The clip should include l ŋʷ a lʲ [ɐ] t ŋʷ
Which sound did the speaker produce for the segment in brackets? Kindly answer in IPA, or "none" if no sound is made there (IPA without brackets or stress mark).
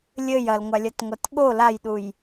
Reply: ɐ